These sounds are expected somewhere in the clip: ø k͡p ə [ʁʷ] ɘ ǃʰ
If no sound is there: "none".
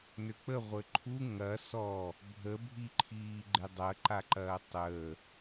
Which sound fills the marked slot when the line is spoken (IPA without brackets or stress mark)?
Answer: ʁʷ